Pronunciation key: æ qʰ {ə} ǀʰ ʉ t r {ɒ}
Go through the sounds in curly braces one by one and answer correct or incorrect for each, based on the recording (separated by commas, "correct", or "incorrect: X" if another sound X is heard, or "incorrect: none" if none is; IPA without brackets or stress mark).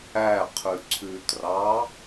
incorrect: ʉ, incorrect: ɑ